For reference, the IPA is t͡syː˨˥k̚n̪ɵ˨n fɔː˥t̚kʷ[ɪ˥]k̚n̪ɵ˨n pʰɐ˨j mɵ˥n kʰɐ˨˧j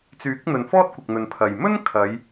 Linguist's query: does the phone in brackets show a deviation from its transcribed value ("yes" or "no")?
yes